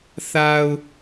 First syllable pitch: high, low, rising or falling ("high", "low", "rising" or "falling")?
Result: low